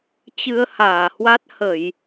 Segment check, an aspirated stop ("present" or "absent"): absent